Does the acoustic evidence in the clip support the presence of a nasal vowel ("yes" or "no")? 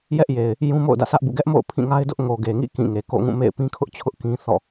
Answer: yes